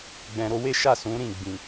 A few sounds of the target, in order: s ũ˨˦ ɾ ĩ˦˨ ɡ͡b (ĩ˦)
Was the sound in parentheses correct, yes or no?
no